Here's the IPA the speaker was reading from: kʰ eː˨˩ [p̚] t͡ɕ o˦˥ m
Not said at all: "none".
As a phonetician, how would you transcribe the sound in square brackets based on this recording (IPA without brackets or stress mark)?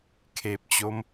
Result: p̚